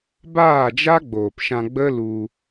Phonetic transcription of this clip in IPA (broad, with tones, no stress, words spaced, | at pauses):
baː˦˨d͡ʒa˦ɡ͡boː˨pʃã˧ ɡ͡bə˦lu˧